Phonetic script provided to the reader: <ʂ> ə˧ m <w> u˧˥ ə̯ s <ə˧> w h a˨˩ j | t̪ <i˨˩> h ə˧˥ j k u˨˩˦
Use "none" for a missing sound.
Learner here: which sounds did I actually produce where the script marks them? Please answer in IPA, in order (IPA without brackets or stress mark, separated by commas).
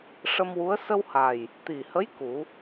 ʂ, w, ə˧, i˨˩